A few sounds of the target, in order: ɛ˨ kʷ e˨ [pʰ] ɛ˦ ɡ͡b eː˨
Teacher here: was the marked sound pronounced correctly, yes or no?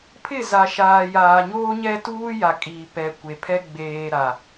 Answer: yes